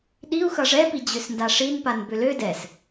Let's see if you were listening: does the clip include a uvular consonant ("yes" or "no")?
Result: no